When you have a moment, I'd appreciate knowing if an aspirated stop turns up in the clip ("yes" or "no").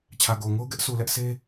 yes